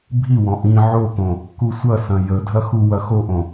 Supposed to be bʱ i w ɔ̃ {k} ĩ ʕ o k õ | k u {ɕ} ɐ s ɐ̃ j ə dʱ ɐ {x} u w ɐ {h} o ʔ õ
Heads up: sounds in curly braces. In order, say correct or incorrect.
incorrect: ʔ, incorrect: sʷ, correct, incorrect: x

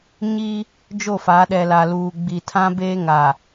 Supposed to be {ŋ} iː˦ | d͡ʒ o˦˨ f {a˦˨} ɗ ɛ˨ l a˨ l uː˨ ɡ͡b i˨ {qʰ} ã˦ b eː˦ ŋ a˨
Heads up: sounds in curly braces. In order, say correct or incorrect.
incorrect: ɲ, incorrect: a˨˦, incorrect: tʰ

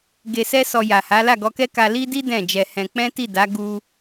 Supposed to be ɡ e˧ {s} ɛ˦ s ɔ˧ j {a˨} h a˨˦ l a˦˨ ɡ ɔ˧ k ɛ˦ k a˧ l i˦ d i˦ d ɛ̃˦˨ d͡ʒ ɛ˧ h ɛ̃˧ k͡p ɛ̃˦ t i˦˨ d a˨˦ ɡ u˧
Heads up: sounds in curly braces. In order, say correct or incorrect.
correct, correct

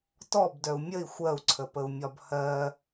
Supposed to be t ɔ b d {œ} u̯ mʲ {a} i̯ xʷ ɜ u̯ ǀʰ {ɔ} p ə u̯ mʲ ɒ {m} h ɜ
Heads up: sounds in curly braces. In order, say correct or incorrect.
correct, incorrect: ə, incorrect: ə, incorrect: b

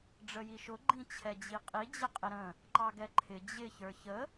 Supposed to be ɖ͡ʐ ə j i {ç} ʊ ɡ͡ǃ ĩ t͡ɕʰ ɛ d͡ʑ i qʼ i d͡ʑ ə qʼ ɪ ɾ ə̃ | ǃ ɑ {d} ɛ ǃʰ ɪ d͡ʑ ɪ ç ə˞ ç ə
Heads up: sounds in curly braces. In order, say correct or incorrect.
incorrect: ʃ, incorrect: ɡ

